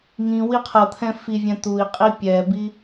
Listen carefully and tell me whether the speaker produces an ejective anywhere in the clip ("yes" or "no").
yes